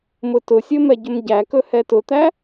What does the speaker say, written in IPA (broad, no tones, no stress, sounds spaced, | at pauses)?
m ʊ t ʊ sʲ ɵ m ɛ ɟ ɵ m ɟ æ k ɵ h ɛ t ʊ t̪ æ